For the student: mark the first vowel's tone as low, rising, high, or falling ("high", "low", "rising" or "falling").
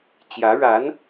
rising